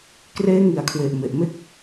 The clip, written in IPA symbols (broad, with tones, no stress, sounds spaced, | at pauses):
k r eː˦˥ ŋ i˩˦ a̯ kʰ w e˨˩ ʔ m e˨˩ ʔ m e˥˩ k̚